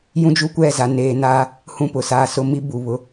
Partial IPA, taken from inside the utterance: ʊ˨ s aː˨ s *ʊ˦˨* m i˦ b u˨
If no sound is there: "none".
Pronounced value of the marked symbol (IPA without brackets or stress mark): ʊ˦